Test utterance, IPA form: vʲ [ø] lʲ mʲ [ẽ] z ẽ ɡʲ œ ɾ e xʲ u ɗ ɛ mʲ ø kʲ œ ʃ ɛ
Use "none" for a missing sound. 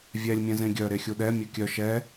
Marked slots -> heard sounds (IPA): ɛ, ɛ̃

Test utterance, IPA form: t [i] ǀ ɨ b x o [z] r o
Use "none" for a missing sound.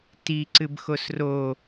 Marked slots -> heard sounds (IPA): i, s

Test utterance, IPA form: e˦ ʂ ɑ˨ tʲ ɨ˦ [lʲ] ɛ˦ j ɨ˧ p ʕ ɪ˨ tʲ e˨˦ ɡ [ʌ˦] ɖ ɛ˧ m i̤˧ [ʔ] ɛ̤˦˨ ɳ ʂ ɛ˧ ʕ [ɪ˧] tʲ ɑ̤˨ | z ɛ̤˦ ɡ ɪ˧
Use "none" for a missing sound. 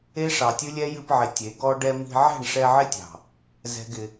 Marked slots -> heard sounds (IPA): lʲ, ɔ˦, ʕ, ɪ˦

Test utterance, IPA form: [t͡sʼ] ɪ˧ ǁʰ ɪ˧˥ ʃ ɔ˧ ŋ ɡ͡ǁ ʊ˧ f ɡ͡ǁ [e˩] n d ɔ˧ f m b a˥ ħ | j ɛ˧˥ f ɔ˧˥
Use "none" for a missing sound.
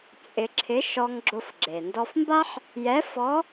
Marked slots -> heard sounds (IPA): t͡sʼ, e˩

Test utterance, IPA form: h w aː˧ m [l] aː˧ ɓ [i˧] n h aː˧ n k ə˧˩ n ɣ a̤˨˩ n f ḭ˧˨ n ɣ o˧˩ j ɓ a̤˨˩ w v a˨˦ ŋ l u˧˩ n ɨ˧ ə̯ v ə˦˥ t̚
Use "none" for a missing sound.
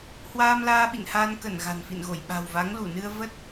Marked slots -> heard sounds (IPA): l, ḭ˧˨

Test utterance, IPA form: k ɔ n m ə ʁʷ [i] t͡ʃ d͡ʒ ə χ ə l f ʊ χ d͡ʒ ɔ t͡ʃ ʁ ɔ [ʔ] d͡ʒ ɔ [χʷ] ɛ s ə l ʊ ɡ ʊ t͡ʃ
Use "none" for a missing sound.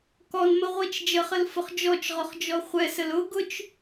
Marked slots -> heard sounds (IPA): i, χ, χʷ

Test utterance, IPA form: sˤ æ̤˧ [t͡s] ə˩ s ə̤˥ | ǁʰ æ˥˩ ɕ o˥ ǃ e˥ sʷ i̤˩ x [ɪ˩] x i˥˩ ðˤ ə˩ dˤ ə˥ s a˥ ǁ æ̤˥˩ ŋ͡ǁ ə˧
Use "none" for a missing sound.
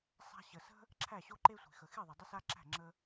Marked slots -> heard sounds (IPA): ɕ, ə˩

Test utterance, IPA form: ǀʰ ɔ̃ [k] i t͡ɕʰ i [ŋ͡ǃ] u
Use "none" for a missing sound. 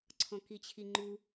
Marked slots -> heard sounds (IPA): k, ŋ͡ǃ

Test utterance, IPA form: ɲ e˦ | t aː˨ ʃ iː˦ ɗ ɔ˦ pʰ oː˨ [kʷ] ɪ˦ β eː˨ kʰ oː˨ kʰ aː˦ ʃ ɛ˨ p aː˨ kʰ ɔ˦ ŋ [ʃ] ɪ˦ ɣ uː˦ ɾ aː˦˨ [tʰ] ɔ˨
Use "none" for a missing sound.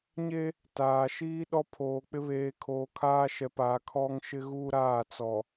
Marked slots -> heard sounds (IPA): k͡p, ʃ, t͡s

